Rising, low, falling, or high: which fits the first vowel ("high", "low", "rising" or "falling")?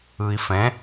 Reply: low